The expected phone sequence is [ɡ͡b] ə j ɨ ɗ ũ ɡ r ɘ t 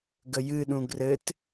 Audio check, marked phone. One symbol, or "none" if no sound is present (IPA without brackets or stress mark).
ɡ